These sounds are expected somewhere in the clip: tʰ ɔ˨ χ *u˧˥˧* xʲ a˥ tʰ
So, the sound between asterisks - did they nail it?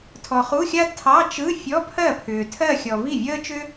yes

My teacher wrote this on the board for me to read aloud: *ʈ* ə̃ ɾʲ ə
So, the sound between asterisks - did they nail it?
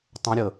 no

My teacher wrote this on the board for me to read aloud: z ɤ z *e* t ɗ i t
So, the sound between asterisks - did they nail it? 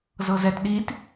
no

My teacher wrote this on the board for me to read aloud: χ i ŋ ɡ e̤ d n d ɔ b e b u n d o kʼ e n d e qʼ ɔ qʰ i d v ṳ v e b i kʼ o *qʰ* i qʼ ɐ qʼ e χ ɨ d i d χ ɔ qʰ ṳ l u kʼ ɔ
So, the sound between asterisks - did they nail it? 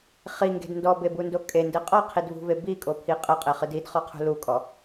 no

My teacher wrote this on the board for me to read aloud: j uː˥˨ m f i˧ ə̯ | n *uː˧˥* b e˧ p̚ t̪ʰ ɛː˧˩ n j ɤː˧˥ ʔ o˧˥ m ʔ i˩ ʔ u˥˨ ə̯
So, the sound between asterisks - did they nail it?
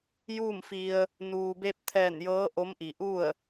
no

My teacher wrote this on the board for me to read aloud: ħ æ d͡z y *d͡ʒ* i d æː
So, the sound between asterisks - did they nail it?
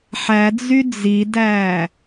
no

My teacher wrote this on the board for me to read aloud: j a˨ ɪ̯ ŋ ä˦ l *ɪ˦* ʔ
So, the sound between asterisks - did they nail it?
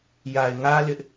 yes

